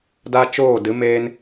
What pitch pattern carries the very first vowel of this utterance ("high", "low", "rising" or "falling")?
high